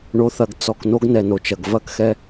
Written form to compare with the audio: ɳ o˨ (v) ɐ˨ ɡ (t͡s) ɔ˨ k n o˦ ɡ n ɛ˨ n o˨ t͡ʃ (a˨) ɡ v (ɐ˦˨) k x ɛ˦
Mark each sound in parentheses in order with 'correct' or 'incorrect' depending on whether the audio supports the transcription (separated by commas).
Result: incorrect, correct, incorrect, correct